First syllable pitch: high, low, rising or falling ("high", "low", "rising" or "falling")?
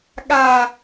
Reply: falling